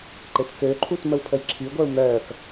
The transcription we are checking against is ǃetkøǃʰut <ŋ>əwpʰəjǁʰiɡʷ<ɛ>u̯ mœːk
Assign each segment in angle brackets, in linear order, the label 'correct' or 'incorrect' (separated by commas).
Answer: incorrect, correct